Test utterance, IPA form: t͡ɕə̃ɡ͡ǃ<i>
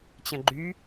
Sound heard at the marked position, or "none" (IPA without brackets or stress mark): y